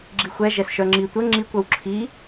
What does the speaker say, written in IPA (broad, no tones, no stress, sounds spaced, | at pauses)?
ɡ͡ǁ i xʷ ɛ ʒ ɛ s ʃ œ ŋ͡ǁ i tʷ ə ŋ͡ǁ i kʷ œ w ǁʰ i